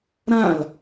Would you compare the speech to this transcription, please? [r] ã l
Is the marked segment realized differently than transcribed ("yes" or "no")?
yes